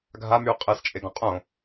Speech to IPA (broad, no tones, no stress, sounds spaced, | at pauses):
ɡʱ a m y ʊ̯ qʼ ɛ s t͡ʃʼ e ɡ ɔ̃ qʼ õ